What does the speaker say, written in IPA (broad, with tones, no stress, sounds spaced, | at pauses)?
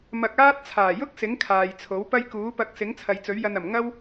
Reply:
m ɐ˧ k̚ aː˥ t̚ t͡sʰ aː˨˩ j ʊ˥ k̚ s ɪ˨˥ ŋ kʰ aː˨ j t͡sʰ o˨˥ w p ɐ˥ j k uː˨˥ p ɐ˧ k̚ s ɪ˨˥ ŋ t͡sʰ ɐ˨ j t͡s ɵ˨˥ ɥ j ɐ˧ n ɐ˨˩ m ŋ ɐ˥ w